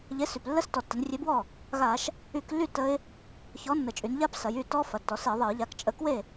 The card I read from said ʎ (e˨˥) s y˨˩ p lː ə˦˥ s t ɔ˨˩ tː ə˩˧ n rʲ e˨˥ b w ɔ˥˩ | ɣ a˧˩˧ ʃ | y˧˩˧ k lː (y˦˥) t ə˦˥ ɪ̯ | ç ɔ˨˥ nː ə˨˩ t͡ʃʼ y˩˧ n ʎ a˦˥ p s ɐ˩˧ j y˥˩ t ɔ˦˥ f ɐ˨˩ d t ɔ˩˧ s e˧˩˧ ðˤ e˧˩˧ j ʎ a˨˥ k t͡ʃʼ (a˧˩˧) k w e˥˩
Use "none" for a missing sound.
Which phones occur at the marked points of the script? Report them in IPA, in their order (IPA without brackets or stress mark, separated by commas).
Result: e˨˥, y˥˩, ə˧˩˧